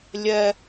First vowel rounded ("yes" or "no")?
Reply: no